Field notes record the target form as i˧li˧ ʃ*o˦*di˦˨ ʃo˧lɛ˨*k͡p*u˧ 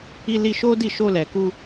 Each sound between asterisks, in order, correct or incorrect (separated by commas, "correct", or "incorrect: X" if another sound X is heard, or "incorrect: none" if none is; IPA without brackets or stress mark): correct, incorrect: k